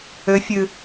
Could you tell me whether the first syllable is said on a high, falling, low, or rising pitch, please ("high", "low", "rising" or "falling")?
rising